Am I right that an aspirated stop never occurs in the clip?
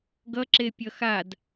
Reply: yes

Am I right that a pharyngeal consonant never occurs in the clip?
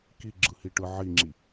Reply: no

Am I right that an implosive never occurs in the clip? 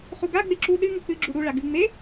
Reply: no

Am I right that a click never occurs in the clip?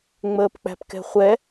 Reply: yes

